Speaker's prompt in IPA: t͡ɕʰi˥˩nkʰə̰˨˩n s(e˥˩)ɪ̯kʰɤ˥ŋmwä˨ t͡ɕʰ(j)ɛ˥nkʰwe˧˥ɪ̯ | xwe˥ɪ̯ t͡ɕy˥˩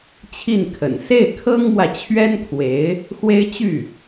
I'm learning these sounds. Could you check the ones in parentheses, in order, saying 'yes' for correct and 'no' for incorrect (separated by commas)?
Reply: yes, no